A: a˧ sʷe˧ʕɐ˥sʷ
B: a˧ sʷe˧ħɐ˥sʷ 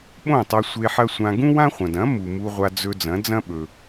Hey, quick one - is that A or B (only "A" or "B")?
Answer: B